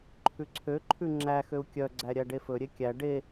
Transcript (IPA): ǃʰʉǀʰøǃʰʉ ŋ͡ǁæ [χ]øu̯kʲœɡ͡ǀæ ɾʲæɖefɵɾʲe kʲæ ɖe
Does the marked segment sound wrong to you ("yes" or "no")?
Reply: yes